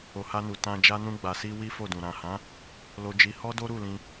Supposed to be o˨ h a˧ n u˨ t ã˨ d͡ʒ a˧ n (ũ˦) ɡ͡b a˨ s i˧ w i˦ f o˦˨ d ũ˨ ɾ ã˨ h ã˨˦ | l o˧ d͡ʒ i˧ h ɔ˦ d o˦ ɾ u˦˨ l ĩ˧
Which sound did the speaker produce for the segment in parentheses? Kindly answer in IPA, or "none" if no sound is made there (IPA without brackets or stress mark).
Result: ũ˧